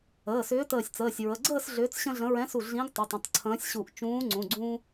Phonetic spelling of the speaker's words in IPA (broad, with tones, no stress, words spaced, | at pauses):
əː˩˧˩sʏː˨˥təː˧˩sʲt͡səː˩˧˩sʲ ɹə˩˧˩ɡ͡ǀəː˥˨s ɮʏː˨˥t͡sɕə̃˦ɮə̃˨˥ ɹɛ̃˨˥su˧˩ ɮĩ˨˥ɡ tˤu˩˧˩tˤə̃˩˧˩tˤ ǀʰə̃ː˨˥sʲɕu˧˩ʔ t͡ʃũː˨˥ŋ͡ǀũ˩˧˩ɡ͡ǀũː˦